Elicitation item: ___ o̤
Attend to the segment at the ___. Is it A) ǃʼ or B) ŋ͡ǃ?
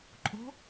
A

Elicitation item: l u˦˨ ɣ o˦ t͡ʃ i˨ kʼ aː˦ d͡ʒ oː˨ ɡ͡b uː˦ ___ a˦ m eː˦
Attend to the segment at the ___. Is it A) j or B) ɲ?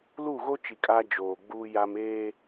A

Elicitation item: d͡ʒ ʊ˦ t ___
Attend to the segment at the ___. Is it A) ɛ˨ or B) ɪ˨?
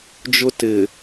B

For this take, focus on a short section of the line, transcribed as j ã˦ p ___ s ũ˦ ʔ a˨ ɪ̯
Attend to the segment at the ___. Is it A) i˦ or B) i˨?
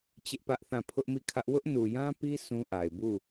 A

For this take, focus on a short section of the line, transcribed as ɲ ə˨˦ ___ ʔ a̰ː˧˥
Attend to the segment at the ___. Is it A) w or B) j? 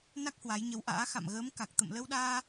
A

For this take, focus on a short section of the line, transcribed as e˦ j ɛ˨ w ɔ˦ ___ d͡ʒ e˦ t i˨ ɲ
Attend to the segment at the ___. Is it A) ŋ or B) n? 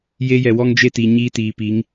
A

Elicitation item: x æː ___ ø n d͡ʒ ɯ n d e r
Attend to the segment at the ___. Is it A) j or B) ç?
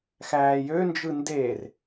A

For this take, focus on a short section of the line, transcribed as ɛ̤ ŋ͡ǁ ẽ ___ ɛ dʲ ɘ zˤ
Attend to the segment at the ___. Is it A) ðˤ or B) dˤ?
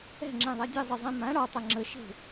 A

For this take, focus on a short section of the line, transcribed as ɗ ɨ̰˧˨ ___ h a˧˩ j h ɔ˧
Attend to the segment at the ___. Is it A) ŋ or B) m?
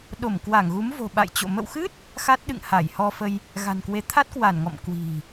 A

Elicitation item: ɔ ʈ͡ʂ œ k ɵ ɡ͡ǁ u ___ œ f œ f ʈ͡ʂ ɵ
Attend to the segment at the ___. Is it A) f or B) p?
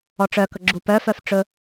B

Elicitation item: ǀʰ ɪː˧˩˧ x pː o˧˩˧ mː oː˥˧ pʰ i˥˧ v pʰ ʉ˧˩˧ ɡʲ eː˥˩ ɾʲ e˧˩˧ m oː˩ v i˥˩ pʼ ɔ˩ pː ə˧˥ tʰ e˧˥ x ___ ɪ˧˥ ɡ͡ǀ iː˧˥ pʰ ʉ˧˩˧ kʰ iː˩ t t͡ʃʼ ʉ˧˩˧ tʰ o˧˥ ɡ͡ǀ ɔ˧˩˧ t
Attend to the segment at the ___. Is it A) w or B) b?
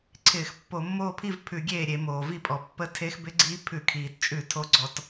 B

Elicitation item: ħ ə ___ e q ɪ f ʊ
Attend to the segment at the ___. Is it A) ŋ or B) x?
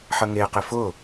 A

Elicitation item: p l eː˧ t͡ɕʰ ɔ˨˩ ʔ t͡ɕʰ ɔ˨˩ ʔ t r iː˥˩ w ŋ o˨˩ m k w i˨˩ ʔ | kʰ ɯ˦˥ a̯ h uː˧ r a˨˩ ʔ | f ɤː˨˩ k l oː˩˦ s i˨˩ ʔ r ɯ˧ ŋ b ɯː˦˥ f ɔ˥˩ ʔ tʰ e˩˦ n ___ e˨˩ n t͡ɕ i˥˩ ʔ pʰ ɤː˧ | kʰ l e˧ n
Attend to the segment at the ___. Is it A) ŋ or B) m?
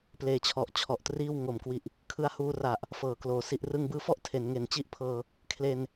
A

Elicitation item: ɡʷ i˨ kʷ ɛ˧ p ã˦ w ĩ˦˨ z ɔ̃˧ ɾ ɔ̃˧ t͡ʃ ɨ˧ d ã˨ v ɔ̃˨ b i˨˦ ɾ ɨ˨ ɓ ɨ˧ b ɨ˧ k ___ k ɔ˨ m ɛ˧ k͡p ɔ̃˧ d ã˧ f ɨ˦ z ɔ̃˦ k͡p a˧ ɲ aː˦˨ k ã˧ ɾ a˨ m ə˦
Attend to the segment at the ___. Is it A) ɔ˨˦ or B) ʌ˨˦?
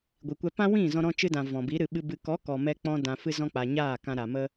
A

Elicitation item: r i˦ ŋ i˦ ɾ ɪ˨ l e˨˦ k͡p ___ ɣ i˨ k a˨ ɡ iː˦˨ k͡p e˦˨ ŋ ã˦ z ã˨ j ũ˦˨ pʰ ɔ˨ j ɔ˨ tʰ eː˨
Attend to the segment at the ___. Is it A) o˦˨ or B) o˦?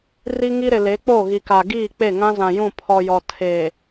A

